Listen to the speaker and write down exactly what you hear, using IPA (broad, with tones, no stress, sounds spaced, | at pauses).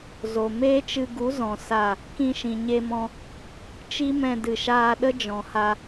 z o˨ m eː˦ t͡ʃ ɨ˧ ɡ u˨˦ z ɔ̃˨ s a˦˨ | k ĩ˧ ʃ ĩ˨ ɲ e˧ m ɔ̃˧ | t͡ʃ i˦ m ɛ̃˧ d ɨ˨ ʃ aː˧ ɗ ə˦ d͡ʒ ɔ̃˨ h a˧